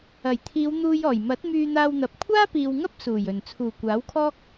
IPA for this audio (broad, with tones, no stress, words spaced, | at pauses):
ɐ˨˩jt̪ʰiː˨˧wn̪uː˧jɔː˨˩j mɐ˨˥t̚ myː˧n̪aː˧wn̪ɐ˨˥p̚ kʷʰaː˥piː˨wŋɐ˥p̚ suː˨˩jɵ˨˩n t͡sʰuː˨˩kʷaː˨˥wkʰɔː˥k̚